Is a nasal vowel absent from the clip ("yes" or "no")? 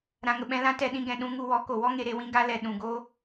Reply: no